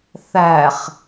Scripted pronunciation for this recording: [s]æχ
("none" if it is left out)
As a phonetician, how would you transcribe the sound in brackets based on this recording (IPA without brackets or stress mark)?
θ